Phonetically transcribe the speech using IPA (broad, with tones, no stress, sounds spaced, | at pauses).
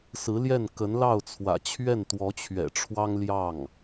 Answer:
s ɹ̩˧˥ l j ɛ˥˩ n k ə˧˥ n l ɑ˥˩ ʊ̯ t͡sʰ w ä̰˨˩ t͡ɕʰ ɥ ɛ˥˩ n t̪ w ɔ˧˥ t͡ɕʰ ɥ ɛ̰˨˩ ʈ͡ʂʰ w ɑ˥ ŋ l j ɑ˥˩ ŋ